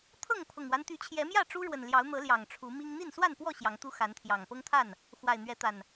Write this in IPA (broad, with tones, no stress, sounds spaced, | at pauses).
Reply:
t̪ʰ ɤ˥˨ ŋ pʰ ʊ˨˩ ŋ w a˦ n t̪ y˨˦ t͡ɕʰ j ɛ˨˦ m j ä˥˨ ʈ͡ʂ u˦ ɻ w ə˨˩ n l j ɑ˨˦ ʊ̯ n̪ ɤ˨˦ l j ɑ˨˩ ŋ ʈ͡ʂʰ u˨˦ m i˦ ŋ n̪ i˥˨ n s w a˥˨ n p w ɔ˥˨ ɕ j ɑ˨˦ ŋ t̪ u˦ x a˨˦ n t̪ʰ j ɑ˨˩ ŋ p ɤ˦ ŋ t̪ʰ a˥˨ n | x w a˨˩ ɪ̯ n̪ ɥ ɛ˨˦ t̪ a˨˩ n